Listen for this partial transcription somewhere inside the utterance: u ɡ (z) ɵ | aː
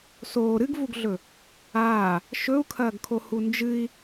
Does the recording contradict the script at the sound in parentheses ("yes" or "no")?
yes